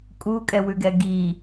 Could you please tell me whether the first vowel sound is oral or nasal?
oral